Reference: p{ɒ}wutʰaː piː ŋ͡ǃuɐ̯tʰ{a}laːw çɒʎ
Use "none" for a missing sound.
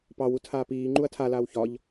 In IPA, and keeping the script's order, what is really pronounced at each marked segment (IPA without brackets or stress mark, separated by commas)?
ɑ, a